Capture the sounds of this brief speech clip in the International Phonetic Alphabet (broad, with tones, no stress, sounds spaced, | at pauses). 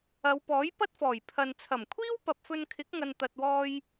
ɐ˨˧ w p ɔː˨˥ j p ɐ˥ t̚ f ɔː˨˩ j pʰ ɐ˨ n t͡sʰ ɐ˨˩ m kʷʰ iː˥ w p ɐ˨ p̚ f ɵ˧ n kʰ ɪ˨˥ k̚ ŋ ɐ˨ n t̪ ɐ˨ t̚ w ɔː˧ j